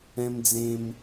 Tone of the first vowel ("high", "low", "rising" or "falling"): low